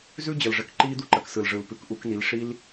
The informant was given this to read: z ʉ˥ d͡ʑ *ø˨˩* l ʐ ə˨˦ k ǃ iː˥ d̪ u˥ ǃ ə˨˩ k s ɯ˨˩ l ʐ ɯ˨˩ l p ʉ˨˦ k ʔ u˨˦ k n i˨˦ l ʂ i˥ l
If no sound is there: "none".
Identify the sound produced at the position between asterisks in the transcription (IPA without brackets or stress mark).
ə˨˩